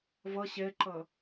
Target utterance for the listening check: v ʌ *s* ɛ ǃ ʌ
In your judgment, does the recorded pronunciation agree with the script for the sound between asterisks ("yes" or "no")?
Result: no